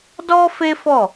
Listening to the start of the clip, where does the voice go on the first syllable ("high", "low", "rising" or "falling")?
high